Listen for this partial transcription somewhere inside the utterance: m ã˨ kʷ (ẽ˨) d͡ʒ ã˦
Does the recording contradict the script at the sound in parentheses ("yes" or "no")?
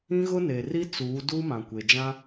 yes